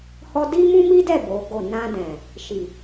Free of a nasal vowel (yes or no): no